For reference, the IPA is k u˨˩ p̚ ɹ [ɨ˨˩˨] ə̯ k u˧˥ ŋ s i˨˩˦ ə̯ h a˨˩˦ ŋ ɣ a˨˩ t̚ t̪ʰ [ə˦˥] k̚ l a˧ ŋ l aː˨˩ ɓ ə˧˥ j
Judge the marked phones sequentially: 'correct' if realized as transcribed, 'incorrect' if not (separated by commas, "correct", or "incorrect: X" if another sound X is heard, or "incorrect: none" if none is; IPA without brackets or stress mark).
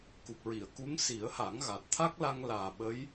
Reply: incorrect: i˨˩˨, incorrect: a˦˥